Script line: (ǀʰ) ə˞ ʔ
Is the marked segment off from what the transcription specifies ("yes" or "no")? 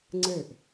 yes